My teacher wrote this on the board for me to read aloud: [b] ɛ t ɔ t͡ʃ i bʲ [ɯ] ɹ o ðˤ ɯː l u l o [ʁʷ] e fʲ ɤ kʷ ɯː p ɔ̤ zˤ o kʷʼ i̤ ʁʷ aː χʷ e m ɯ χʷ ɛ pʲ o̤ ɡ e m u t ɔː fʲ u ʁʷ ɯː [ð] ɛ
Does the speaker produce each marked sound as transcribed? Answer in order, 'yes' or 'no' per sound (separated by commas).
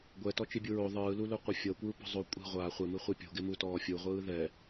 no, no, no, yes